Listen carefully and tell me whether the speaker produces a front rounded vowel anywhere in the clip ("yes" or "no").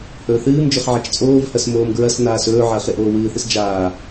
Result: no